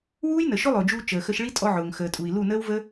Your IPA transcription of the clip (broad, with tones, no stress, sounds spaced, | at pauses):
w uː˦ j n ə˨ ʃ ʊ˦ lˠ ʊː˨ d͡ʒ uː˧ t͡ʃ əː˨ x ə˧ ʃ ɭ i˦ tʼ ɔ˧ ʕ ʊː˨ ŋ x əː˨ tʼ u˨ i̯ l u˦˨ n əː˦ w v ə˦